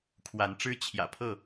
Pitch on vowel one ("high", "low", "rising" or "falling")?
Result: rising